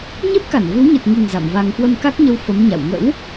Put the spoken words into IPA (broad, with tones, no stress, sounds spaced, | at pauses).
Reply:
ɲ e˦˥ p̚ k a˧˩ n v ɨ˨˦ w ɲ ɨ˨˩ t̚ ŋ i˨˩ ŋ z a̰˧˨ m v a˧ ŋ k w ə˧ m k a˦˥ k̚ ɲ ə˧ w f ə˨˦ m ɲ a̰˧˨ w ŋ ə̰˧˥ w